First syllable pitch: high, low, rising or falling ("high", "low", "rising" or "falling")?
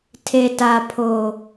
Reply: low